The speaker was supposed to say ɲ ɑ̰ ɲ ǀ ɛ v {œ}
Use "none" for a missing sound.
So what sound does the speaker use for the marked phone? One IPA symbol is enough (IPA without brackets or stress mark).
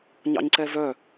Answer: œ